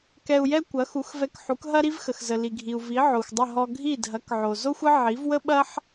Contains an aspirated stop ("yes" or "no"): no